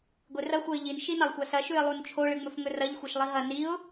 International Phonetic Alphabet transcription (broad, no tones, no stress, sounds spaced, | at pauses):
ɡʷ e r ɐ xʷ ɐ ɪ̯ ʎ i n ʃ i n ɐ lˠ xʷ a s ɐ ʃ ʉ ɪ̯ lˠ u n t͡ʃʰ o ɭ ɨ ŋ͡m ɵ f ŋ ɵ r ɐ ʎ xʷ e ʃ lˠ i ɦ ɐ n i ʊ̯